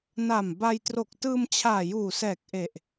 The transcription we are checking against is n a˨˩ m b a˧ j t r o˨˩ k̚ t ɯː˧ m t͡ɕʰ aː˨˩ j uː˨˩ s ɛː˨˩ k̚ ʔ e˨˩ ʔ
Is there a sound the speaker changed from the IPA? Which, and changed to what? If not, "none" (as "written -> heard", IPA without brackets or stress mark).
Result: none